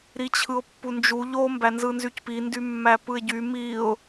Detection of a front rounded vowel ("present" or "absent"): present